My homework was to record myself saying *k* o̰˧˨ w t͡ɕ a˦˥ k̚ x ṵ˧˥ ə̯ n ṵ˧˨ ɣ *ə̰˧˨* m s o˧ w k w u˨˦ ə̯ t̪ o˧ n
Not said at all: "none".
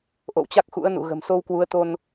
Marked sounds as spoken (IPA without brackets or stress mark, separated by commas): ʔ, ə̤˨˩